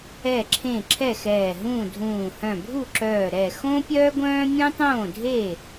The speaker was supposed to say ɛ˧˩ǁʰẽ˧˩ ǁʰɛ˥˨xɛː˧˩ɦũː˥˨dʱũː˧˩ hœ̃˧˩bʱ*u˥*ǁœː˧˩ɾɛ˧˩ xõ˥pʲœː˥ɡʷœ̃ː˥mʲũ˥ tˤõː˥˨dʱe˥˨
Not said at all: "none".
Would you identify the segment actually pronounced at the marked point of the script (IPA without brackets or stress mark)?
u˥˨